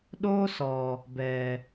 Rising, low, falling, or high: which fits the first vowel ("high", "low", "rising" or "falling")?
high